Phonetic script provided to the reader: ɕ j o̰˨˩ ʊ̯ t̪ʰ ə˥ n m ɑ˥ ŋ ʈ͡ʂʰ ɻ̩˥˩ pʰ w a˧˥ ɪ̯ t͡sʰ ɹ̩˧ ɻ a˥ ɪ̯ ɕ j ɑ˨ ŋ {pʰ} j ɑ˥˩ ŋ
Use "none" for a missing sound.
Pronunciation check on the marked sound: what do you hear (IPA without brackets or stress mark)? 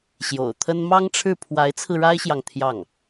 t̪ʰ